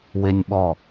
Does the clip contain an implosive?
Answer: yes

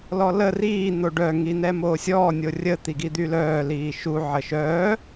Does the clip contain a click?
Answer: no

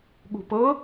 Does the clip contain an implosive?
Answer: yes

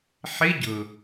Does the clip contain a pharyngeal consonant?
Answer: yes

